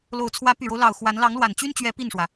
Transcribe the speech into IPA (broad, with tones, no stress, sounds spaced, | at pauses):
l o˨˩ ʊ̯ t͡sʰ w ä˧˥ p y˨˩ ɻ o˦ ʊ̯ l ɑ˨˩ ʊ̯ x w a˧˥ n l ɑ˧˥ ŋ l w a˨˩ n t͡ɕ y˥ n t͡ɕ ɥ ɛ˧˥ p i˥˩ n ʂ w ä˩